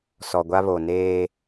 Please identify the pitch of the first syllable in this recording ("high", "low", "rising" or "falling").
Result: low